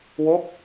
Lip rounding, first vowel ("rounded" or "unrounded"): rounded